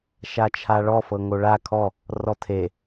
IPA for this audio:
ʃ a t͡ʃʰ a ɭ ɔ f ɤ ŋ o ɭ a kʰ ɔ | r ɔ tʰ e

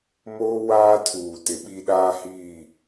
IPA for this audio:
m oː˦ w aː˦ tʰ uː˨ t ɪ˨ ɓ i˦ ɗ aː˦ h iː˦˨

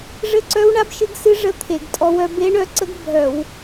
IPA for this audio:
ʐ ɘ˦˥ ǀ œ˦˥ w ɳ a˦˥ b ʃ ɨ˦˥ ɡ s ɨ˦˥ ʐ ə˦˥ t̪ʰ e˧˩˧ ɡ tʼ ɔ˦˥ w œ˦˥ b e˦˥ ɳ œ˦˥ ǀ ə˦˥ ɡ bʱ œ˧˩˧ w

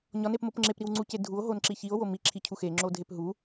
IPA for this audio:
ɲ ɒ n e p m o p ŋ͡ǁ e p ɾ i w ŋ͡ǀ u c e dʱ u o̯ ɦ o n ǁ i ç i o̯ w o m i ǁʰ i cʰ u x e ŋ͡ǁ o dʱ e p ɦ u

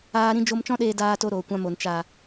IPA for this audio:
aː˦ ɾ ĩ˦ d͡ʒ o˦ m t͡ʃ ɔ̃˦ ɗ eː˧ d aː˧ t o˧ ɾ oː˨ kʷ ã˧ m o˨ n t͡ʃ a˨

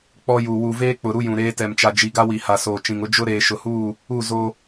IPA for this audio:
k͡p ɔ˦ j u˨ w u˨ v eː˦ k͡p ʊ˨ ɾ u˦ j ũ˨ ɾ eː˦ t ɛ˨ m t͡ʃ a˨ d͡ʒ i˨ ɡ a˦ w i˨ h a˨ s oː˨ t͡ʃ ĩ˨ ŋ ʊ˦ d͡ʒ ʊ˦ ɾ eː˨ ʃ ʊ˨ h uː˦˨ | u˦˨ z o˦

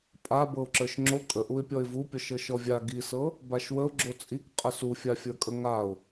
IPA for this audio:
pʼ a b ɤ ʊ̯ ǁ ə˞ ʃ ŋ͡ǁ o kʼ ə ʔ u ɪ̯ pʲ ɔ ɪ̯ v u pʲ ɔ ʃ ɤ ʃ ɔ vʲ a ɡ i s ɤ | b a ʃ w ə ʊ̯ ɡ͡ǁ o t͡sʼ i k qʼ ə s u fʲ a fʲ ə˞ kʼ ə ŋ a ʊ̯

